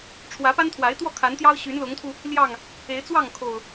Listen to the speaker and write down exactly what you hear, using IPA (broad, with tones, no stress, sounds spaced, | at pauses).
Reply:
ʈ͡ʂʰ w ä˨˦ p a˦ n t̪ʰ w a˨˦ ɪ̯ t̪ w ɔ˥˨ kʰ a˨˦ n t̪ j ɑ˦ ʊ̯ ɕ y˨˦ n l ʊ˨˦ ŋ t̪ʰ u˧ | l j ɑ˥˨ ŋ | e˨˦ ɪ̯ t͡s w ɑ˥˨ ŋ kʰ o˨˩ ʊ̯